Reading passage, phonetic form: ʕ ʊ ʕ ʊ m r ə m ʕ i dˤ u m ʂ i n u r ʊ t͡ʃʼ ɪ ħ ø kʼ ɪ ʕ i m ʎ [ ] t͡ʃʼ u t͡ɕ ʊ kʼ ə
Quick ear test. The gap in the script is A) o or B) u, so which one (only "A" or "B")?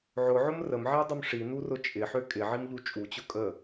B